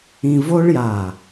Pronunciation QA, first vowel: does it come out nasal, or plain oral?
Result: nasal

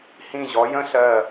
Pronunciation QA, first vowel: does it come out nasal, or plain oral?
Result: nasal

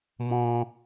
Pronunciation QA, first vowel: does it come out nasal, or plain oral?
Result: nasal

